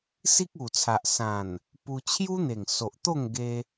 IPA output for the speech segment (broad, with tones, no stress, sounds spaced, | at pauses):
s i˦ k̚ u˨˩ t͡sʰ a˨ ʔ s ã˨˩ n | p u˧ t͡ɕʰ j u˦ n̪ e˨˩ ŋ s o˨ ʔ t̪ o˥˧ ŋ ɡ e˧